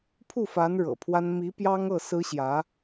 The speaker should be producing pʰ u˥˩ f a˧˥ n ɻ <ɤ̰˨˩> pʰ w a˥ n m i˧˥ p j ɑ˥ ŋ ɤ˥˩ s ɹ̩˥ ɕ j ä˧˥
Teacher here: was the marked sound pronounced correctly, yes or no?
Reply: yes